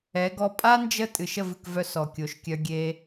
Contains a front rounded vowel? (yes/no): yes